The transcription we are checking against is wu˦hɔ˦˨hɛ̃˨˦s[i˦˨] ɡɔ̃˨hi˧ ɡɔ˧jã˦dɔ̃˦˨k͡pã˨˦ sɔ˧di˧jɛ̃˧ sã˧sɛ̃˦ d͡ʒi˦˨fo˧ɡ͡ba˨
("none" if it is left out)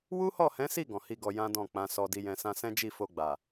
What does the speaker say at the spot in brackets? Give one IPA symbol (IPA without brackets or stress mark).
i˦˨